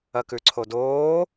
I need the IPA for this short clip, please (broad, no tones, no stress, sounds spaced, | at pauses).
ɐ k ʉ ǀʰ o d oː